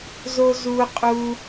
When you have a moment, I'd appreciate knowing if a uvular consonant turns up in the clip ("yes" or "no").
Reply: yes